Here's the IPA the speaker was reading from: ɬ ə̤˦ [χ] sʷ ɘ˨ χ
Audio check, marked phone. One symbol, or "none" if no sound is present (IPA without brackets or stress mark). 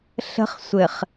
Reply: χ